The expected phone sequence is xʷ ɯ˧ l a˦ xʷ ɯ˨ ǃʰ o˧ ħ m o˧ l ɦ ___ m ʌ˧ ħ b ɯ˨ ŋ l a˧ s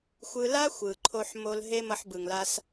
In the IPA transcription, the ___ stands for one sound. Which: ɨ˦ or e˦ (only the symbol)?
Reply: e˦